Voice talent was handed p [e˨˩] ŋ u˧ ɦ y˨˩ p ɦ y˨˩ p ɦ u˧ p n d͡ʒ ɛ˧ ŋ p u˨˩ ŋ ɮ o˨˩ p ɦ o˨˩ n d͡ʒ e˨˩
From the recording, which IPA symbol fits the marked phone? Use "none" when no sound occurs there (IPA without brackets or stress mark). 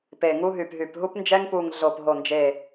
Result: e˨˩